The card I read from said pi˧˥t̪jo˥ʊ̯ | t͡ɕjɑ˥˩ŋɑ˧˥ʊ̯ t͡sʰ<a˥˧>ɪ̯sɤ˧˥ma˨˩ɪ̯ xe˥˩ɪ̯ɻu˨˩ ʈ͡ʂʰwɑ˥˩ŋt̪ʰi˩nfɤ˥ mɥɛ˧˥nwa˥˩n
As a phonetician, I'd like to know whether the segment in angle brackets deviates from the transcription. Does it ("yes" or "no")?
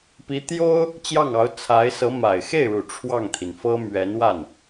yes